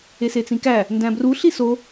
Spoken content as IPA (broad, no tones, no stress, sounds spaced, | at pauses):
e s e t͡s ĩ k æ | n d æ̃ b r u ɬ i s o